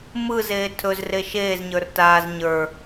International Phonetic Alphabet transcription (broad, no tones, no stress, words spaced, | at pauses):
mɯzeː tʰɵzre ʃeːzɲə˞r taːz ɲə˞